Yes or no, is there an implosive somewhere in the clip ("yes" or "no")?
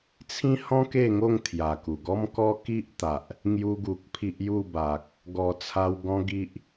no